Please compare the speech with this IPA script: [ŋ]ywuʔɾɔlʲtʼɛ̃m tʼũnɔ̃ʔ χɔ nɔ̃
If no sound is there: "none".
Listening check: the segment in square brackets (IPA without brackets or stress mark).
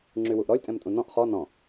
ŋ͡ǁ